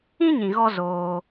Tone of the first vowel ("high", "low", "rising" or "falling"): high